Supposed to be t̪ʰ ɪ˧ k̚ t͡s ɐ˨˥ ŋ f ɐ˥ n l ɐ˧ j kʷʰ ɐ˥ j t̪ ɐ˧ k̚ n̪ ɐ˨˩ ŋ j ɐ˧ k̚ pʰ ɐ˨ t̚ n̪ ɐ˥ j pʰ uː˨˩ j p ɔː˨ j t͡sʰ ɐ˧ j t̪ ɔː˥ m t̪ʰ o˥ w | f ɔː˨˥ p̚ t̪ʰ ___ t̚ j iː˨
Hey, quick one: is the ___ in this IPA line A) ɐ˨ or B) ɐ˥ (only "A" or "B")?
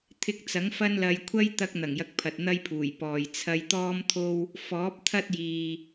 B